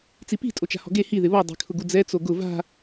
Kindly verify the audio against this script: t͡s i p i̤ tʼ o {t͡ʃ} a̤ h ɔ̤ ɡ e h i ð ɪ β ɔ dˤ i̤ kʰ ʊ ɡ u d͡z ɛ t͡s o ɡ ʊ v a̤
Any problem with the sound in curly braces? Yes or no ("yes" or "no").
no